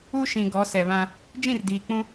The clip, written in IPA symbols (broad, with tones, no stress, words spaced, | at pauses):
u˦ʃĩ˨ ɡɔ˨˦ sɛ˨βã˦ | d͡ʒĩ˦˨rdiː˨k͡pũ˦